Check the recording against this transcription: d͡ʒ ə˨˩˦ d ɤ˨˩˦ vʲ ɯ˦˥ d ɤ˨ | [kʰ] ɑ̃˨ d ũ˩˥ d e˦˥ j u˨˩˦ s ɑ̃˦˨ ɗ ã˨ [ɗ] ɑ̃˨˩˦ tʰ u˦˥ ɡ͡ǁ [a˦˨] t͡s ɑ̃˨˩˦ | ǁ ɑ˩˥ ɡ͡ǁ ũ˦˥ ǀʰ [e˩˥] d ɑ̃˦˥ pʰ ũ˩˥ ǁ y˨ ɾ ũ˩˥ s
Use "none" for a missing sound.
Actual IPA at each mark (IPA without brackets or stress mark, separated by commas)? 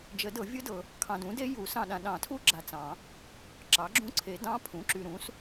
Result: kʰ, ɗ, a˨, e˨˩˦